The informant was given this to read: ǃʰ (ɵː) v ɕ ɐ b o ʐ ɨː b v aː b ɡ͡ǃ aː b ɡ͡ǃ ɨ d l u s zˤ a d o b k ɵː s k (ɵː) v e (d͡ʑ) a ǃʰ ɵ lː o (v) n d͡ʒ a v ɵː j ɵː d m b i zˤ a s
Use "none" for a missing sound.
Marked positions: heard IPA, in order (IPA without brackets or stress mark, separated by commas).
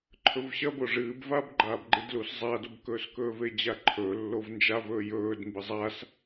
ɵ, ɵː, d͡ʑ, v